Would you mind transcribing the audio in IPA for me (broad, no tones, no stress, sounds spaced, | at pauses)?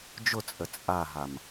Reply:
d͡ʒ ʊ t͡sʼ ə t͡sʼ a ɦ a m